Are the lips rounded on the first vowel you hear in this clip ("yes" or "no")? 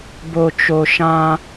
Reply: yes